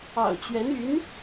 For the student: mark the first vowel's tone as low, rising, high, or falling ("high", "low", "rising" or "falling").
low